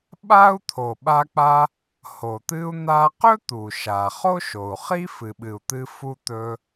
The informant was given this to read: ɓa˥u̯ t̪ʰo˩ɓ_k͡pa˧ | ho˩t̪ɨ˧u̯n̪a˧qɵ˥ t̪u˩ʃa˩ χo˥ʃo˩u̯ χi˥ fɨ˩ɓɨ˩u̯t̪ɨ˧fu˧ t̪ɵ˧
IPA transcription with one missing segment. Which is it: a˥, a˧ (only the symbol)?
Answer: a˧